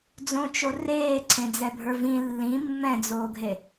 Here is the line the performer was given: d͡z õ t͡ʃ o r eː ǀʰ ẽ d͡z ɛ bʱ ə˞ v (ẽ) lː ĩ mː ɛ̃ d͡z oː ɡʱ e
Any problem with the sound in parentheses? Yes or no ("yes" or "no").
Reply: yes